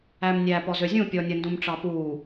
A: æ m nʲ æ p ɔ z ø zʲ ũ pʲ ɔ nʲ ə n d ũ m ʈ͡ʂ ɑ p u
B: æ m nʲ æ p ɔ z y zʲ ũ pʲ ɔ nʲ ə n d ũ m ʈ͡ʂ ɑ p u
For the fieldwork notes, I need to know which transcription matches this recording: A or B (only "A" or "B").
A